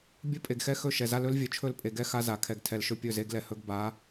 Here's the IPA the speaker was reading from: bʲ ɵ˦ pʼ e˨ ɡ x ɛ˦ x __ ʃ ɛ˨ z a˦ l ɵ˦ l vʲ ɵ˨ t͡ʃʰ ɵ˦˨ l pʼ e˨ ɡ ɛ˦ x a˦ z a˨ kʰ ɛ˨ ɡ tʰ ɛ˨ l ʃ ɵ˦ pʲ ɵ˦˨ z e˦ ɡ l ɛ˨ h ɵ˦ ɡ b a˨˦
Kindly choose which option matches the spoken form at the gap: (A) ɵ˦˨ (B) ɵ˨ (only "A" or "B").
A